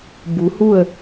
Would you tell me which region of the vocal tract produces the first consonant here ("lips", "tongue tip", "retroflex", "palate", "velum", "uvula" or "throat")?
lips